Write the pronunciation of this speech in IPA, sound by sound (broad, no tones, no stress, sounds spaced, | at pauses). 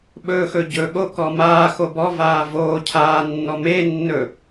ɓ ɵː x ɵ ɟ ɵ ɠ o k ɔ m aː x o b ɔ v aː v oː cʰ aː nː ɔ m e nː ɵ